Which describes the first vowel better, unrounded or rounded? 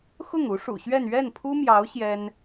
rounded